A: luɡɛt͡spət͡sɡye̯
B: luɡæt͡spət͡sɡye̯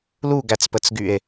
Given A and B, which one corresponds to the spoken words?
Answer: B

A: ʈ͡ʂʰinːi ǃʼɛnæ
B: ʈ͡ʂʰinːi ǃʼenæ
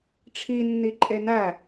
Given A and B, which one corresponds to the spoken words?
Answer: B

